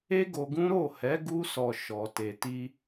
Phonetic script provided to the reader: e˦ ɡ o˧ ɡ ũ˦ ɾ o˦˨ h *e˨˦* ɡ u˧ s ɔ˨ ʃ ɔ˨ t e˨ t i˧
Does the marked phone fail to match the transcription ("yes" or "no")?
yes